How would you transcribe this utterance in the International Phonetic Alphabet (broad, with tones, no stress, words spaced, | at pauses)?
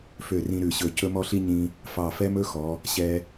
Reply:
fø˧˩rĩ˧ ɾʉ˧˩ɕɵ˧˩ cɵ˥mɔ˥ɬi˥ ɲĩ˧ | fɑ˧˩fɛ˥mɵ˥xɔ˩˧ | ɕɛ˧